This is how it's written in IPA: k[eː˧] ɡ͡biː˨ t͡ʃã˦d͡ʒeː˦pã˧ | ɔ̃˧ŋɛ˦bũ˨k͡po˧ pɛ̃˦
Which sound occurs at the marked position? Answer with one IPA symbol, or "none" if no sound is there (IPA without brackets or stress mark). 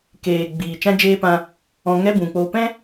eː˨